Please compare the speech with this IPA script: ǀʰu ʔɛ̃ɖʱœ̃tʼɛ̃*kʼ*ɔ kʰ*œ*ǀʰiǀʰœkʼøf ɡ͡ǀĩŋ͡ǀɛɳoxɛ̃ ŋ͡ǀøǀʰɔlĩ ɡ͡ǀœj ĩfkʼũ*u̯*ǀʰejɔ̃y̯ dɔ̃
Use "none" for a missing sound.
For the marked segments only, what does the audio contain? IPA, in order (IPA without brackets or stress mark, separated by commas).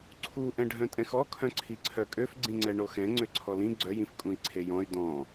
x, œ̃, i̯